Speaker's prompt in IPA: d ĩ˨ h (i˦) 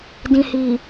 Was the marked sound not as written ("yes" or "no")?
yes